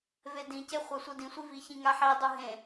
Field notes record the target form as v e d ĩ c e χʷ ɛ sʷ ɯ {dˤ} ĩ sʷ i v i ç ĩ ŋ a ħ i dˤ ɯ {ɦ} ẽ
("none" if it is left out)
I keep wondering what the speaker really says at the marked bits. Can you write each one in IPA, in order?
d, ɦ

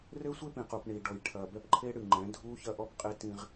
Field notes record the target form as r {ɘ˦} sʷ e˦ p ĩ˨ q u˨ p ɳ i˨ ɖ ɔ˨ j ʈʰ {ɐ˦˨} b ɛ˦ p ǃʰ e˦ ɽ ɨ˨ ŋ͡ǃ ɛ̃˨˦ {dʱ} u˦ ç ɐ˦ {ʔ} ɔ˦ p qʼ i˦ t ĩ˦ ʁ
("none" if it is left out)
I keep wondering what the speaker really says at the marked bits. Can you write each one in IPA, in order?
ɘ˦, ɐ˨, dʱ, ʔ

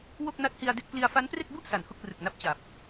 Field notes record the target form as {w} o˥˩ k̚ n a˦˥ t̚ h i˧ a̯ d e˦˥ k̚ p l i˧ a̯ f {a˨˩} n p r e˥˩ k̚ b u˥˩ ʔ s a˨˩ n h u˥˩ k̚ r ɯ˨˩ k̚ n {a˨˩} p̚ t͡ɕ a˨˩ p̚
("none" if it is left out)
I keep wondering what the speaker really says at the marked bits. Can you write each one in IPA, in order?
w, a˦˥, a˦˥

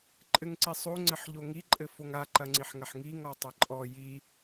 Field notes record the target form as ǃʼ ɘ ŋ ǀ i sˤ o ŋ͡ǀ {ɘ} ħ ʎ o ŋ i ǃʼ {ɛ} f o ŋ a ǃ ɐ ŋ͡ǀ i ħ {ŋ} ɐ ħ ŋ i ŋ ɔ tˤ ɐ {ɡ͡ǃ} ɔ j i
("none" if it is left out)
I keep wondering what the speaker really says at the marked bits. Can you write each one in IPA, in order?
ɘ, ɘ, ŋ, ǃʼ

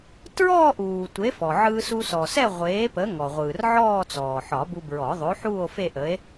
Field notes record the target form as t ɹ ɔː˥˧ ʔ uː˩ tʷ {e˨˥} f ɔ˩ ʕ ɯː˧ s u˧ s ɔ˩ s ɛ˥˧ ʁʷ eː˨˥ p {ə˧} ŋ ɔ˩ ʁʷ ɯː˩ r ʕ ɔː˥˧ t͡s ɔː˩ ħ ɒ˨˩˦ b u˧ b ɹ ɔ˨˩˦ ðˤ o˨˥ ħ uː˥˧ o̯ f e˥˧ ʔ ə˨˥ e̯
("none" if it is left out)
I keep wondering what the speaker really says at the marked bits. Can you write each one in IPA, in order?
e˨˥, ə˨˥

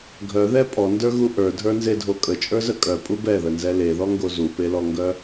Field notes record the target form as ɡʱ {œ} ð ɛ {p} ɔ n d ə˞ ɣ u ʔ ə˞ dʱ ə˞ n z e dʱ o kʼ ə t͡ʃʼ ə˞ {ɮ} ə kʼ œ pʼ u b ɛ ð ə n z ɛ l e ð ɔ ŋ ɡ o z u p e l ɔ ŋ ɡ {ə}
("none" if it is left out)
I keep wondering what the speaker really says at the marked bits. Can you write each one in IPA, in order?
œ, pʼ, z, œ

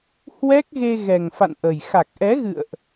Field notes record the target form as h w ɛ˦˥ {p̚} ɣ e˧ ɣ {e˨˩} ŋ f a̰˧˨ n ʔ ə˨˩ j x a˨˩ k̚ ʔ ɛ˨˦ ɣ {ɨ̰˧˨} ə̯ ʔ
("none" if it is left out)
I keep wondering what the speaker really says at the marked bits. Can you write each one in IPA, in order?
k̚, ɛ˨˩, ɨ̰˧˨

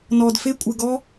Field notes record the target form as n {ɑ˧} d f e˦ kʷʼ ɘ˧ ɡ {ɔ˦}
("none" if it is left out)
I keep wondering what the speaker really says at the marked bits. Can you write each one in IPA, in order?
ɔ˧, ɔ˦

